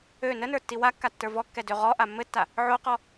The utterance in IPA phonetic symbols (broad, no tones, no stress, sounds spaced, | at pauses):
ø n ə n ə˞ tː i w a kː a tː ə˞ v ɔ kː ɛ d ø ʁ ɔ ʔ a mː ɘ tː a | ʕ o q ɔ